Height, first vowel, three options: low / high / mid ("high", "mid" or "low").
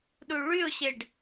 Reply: high